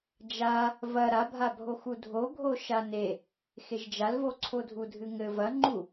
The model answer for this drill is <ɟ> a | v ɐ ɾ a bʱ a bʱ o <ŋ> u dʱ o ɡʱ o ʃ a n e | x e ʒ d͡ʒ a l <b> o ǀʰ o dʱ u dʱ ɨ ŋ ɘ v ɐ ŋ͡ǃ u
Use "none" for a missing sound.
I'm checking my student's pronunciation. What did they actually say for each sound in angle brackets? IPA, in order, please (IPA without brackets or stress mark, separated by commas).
d͡ʒ, x, v